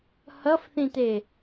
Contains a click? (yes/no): no